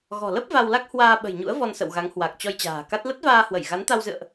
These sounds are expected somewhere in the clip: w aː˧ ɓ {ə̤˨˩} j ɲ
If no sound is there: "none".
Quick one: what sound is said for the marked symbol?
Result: ə̤˨˩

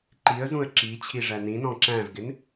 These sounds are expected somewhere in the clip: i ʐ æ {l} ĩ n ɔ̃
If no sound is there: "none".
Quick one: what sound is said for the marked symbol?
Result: n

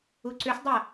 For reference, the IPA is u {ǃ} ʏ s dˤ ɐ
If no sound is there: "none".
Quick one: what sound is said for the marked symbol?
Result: ǀ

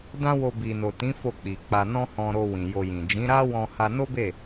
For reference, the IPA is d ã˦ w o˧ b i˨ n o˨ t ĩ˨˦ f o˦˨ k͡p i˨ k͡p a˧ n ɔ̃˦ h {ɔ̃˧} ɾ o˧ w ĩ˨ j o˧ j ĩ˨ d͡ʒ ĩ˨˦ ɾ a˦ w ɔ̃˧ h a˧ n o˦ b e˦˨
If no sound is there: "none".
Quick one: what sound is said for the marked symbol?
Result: ɔ̃˧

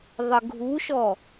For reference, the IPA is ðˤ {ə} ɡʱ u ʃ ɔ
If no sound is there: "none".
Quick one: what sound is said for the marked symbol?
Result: ə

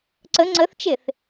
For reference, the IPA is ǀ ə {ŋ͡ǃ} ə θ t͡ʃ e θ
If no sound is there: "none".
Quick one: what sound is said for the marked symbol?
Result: ŋ͡ǀ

